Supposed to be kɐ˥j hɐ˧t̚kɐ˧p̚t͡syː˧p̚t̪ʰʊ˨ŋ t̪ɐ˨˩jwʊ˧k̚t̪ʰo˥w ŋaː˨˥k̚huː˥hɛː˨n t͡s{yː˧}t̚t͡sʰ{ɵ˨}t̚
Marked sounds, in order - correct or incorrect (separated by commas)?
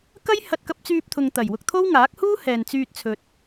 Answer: correct, correct